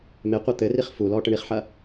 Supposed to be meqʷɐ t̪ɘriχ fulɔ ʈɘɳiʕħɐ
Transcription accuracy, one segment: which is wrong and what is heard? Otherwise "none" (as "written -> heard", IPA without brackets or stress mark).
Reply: ʕ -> χ